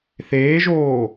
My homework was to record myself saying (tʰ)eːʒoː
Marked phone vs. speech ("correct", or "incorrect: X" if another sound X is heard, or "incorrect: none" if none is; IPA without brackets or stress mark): incorrect: θ